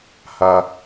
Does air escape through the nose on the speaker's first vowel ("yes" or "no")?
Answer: no